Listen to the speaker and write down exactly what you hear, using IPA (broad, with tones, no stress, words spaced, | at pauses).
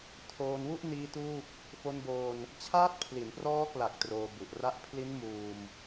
tʰoː˧nwu˥˩ʔniː˦˥ tuː˥˩p̚ | fo˧nboː˧n | t͡ɕʰaː˦˥t̚pʰli˩˦nprɔː˦˥kla˨˩k̚ troː˧bu˨˩ʔra˦˥ʔ pʰli˦˥nmuː˧m